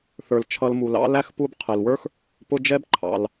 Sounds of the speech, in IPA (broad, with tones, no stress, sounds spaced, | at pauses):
θ ə˞˩ l t͡ʃʰ ʌ˨ l m u˩ l ɑ̰˦ l æ˥ x p u˦ b qʰ ɛ˩ l w ə˞˥ x | p ʊ˦ d͡ʒ ɛ˥ b ǃʰ ɑ̰˩ l